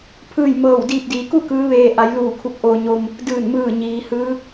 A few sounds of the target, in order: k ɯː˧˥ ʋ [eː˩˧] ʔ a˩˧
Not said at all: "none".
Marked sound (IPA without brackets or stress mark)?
eː˧